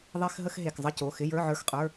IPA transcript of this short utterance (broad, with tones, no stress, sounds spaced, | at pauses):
ðˤ e˧˥˧ x ɦ ə˧˥˧ x ɦ e˩˧˩ k zˤ ə˧˥˧ c o˩˧˩ x ɪ˧˥˧ j ə˞˧˥˧ ʕ ə˞˧˥˧ x qʼ ə˞˧˥˧